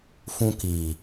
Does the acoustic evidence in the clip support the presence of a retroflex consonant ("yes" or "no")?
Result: no